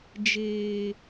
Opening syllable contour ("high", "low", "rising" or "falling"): low